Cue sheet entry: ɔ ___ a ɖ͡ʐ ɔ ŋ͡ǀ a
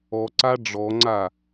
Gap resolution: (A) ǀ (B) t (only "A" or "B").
A